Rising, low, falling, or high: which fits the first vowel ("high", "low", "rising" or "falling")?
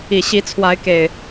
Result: low